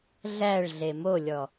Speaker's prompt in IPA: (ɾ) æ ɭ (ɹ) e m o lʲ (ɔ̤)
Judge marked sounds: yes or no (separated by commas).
no, no, no